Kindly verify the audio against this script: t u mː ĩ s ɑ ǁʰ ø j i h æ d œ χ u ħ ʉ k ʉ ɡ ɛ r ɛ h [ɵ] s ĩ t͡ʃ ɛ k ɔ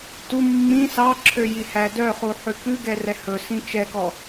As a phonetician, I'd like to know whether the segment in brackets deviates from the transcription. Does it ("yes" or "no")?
no